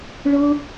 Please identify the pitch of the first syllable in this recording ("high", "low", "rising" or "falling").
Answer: high